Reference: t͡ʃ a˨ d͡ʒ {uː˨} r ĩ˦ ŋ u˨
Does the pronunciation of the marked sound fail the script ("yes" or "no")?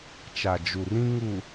yes